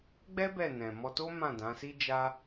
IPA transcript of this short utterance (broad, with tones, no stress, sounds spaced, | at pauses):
ɡ͡b ɛ˦ b ɛ˦˨ n ɛ̃˨ m ɔ˧ t o˦ m ã˦˨ d ã˨˦ s i˦ d͡ʒ a˦